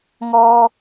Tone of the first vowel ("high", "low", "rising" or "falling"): high